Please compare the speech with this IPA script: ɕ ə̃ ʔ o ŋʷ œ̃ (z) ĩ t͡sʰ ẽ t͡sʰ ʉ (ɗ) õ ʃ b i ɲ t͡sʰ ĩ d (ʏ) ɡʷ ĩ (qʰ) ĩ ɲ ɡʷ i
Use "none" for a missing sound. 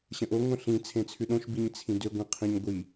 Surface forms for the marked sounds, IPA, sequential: ɬ, ɗ, ʏ, qʰ

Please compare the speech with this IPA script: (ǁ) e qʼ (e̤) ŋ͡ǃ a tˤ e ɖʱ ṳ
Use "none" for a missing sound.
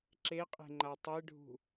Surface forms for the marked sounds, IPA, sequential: ǁ, e̤

